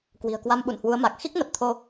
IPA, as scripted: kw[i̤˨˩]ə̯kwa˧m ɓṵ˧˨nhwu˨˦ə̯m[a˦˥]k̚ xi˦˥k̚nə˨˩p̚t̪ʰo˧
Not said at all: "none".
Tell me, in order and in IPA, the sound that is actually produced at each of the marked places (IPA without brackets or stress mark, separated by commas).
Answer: i̤˨˩, a˨˩